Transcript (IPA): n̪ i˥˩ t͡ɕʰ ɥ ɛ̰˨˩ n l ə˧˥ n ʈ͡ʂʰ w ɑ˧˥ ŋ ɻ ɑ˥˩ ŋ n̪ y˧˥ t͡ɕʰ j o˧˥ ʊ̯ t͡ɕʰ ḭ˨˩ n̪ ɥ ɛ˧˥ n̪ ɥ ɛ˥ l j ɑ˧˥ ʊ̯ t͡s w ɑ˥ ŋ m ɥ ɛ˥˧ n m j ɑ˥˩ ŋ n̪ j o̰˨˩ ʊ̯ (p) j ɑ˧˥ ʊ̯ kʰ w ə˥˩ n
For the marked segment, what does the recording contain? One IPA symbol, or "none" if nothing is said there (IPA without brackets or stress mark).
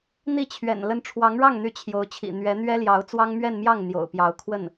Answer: p